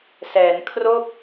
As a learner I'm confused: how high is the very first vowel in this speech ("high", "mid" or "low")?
mid